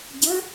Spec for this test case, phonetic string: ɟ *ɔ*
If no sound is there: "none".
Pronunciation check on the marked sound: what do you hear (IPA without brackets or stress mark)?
ə